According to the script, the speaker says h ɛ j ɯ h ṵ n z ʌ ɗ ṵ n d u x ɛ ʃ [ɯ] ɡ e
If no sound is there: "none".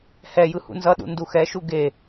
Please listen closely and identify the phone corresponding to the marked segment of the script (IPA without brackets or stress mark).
u